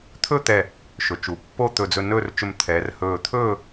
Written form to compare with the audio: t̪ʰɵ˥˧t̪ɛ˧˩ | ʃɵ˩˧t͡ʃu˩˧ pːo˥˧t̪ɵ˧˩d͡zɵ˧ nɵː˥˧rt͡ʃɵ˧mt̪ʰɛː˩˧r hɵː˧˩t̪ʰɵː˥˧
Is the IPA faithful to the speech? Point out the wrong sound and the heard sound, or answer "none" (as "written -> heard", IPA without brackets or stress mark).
none